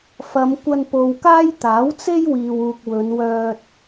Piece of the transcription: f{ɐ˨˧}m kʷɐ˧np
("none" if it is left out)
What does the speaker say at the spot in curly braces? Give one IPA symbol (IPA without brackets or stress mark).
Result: ɐ˨˧